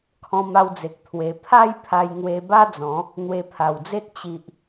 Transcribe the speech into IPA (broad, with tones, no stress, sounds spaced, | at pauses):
kʰ ɔ̃˧ m a˧ w d͡z e˨ k̚ t̪ʰ w e˧ pʰ a˥˧ j pʰ a˧ j ŋ w e˧ b a˦ d͡z ɔ̃˨˦ | n̪ w e˧ pʰ a˨˩ w d͡z e˦ t̚ t͡ɕ i˨ ʔ